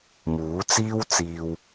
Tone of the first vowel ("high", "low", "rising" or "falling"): rising